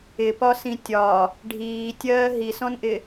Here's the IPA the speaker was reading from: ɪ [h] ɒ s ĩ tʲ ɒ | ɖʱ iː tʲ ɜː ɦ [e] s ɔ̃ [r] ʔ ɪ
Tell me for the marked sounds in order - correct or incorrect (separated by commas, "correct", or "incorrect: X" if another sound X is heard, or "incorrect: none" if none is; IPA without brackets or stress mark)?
incorrect: p, incorrect: i, incorrect: n